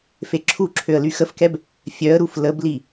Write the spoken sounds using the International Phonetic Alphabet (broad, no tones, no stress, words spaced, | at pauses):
feǁʰuǁʰøə̯ lyxəfkɛb | fʲœə̯ɾuf ləbli